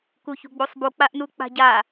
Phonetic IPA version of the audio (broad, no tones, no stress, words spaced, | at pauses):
kuçṳɡ͡busˤbu k͡paʔnuk͡pa̤ɟa